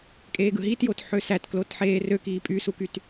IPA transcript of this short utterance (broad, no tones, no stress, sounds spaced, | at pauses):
kʼ eː ɡ ɯ ɦ i t j o t ħ ø s æ t k l o t ħ eː r ø k iː pʼ y s u k y t